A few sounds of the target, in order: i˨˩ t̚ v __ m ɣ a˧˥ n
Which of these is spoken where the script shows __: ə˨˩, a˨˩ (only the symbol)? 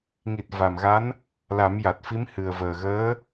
a˨˩